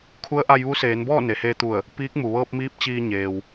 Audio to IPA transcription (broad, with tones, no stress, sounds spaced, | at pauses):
kʰ u˧˥ ə̯ ʔ a˧ j ʋ u˧˥ s eː˩˧ n b ɔː˥˨ n e˩ h eː˧ t̪ u˧˩ ə̯ | p iː˧˥ k̚ m u˩ ʋ ɤː˧ p̚ m iː˧˥ p̚ t͡ɕ iː˧ ɲ eː˩ w